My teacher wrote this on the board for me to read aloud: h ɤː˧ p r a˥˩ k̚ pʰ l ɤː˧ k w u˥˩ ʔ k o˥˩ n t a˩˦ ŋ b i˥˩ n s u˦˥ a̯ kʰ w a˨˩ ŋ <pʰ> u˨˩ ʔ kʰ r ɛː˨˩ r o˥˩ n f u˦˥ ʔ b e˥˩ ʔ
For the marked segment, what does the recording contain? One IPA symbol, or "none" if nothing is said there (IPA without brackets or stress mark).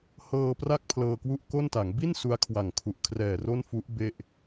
kʰ